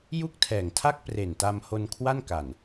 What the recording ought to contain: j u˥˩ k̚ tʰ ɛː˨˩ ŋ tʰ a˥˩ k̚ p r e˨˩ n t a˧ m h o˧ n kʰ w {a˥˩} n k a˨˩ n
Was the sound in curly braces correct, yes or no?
yes